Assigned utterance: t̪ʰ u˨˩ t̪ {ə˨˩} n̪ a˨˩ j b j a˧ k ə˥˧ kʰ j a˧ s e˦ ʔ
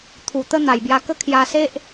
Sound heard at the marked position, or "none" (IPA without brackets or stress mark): ə˦